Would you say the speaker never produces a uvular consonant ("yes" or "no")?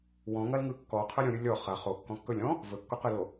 no